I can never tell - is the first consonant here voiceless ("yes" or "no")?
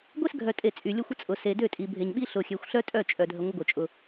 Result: no